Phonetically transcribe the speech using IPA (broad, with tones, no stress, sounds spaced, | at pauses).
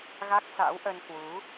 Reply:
ɣ a˦˥ k̚ s a̰˧˥ w ʔ ə˧ n k w u˨˦